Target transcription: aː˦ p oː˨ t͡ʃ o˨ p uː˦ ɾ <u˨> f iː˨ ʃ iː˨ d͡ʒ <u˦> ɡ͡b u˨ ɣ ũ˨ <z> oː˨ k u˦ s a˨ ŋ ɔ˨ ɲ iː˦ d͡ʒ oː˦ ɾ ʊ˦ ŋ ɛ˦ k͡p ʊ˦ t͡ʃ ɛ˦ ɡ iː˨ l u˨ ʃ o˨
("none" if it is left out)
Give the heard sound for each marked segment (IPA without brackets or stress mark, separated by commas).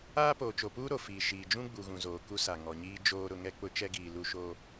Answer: o˨, ũ˦, z